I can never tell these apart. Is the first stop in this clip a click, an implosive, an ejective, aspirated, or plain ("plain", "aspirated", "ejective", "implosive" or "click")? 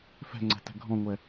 click